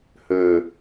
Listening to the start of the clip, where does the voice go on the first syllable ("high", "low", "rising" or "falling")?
low